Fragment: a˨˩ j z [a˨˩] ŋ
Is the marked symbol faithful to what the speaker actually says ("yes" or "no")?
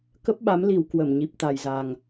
yes